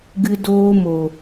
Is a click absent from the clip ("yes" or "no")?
yes